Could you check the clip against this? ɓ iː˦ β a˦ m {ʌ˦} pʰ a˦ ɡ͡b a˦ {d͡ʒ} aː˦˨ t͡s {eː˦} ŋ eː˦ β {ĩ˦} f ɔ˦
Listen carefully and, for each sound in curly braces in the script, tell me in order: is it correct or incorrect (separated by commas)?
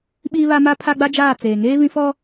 incorrect, correct, incorrect, correct